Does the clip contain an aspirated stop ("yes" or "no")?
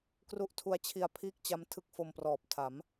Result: yes